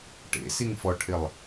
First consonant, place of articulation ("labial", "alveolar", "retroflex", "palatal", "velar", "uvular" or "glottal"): retroflex